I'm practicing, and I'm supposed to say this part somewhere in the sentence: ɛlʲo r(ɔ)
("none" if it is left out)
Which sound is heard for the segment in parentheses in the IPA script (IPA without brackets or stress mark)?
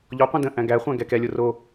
o